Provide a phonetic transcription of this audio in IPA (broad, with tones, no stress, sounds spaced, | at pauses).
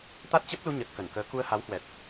t̪ a˦˥ t̚ t͡ɕ ə˦˥ p̚ l u˧ ɲ ə˨˩ t̚ k ə˧˩ n k əː˨˦ k u˧ ə̯ h a˨˦ w h w ɛ˨˩ t̚